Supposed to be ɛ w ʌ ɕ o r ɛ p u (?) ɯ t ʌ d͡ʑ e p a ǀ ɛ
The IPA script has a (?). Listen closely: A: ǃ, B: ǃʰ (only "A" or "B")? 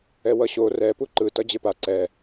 A